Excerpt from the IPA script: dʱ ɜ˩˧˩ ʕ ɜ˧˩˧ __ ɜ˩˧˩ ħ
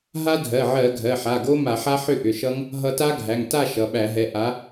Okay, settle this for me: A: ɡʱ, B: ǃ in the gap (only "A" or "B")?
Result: A